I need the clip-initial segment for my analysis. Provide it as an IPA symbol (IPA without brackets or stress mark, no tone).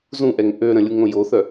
z